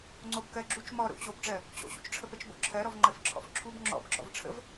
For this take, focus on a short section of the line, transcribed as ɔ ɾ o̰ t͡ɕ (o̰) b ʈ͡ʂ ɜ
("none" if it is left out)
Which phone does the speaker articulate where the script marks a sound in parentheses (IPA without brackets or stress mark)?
o